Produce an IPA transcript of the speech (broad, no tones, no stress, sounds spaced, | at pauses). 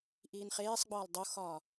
ʔ iː n χ eː sˤ ɡ͡b ɒː l dˤ o x ɒː